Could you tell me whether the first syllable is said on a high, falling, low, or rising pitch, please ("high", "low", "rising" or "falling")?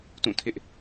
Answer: falling